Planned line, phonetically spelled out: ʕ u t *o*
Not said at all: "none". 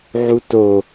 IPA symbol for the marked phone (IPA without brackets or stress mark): o